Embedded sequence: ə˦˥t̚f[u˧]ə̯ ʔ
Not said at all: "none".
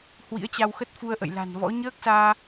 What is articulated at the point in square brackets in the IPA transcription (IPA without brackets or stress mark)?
u˧